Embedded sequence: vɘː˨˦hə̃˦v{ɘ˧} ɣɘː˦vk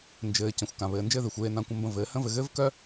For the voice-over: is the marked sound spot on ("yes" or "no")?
yes